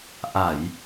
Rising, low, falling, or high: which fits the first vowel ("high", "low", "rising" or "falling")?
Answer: low